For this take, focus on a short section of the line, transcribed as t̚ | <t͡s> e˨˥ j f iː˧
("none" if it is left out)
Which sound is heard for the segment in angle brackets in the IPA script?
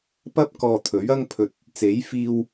t͡s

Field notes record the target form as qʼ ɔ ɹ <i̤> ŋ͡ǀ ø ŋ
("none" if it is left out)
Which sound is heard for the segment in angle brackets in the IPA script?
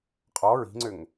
i̤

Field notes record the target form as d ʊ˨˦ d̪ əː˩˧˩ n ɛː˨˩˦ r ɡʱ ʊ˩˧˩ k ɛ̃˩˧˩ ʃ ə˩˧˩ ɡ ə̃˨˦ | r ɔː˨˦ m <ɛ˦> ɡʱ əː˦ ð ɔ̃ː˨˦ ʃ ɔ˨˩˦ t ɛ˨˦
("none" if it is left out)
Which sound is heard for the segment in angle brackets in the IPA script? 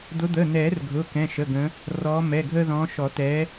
ɛ˩˧˩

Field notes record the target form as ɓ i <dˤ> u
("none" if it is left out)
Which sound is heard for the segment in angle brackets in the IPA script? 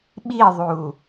ðˤ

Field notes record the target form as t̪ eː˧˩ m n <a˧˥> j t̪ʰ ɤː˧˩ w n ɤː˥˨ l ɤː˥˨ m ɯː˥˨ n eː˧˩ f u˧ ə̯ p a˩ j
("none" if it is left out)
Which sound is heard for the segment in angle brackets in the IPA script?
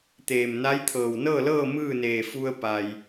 a˧˥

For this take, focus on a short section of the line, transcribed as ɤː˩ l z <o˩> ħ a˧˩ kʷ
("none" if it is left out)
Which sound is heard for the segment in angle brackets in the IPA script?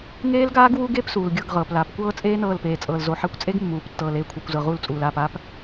o˩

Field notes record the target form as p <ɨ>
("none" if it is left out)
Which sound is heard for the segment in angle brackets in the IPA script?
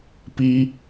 i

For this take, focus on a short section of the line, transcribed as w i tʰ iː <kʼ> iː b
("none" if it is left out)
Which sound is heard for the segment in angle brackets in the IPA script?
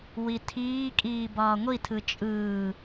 kʼ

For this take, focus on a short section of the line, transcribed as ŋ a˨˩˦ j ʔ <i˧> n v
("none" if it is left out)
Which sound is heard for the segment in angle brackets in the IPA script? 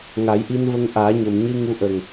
i˧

